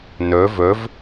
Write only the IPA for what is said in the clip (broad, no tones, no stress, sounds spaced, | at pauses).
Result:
n ɵ v ɵ v